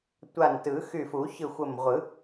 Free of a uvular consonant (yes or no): no